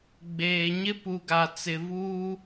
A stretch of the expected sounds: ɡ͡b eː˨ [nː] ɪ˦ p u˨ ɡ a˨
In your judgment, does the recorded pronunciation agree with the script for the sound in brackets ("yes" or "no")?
no